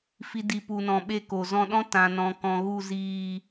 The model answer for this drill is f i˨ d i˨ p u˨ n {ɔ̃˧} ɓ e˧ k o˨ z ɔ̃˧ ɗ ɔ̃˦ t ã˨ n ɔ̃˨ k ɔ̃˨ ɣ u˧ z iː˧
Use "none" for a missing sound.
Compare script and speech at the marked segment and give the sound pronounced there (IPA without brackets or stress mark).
ɔ̃˨